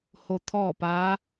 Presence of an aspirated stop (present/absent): present